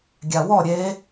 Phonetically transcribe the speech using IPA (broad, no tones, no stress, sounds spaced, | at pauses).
ɡʲ a w ɔ ɾʲ e